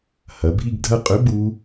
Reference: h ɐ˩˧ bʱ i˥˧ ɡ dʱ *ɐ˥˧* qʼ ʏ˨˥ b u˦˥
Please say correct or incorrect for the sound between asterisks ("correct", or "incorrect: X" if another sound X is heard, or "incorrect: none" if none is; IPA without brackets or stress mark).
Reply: correct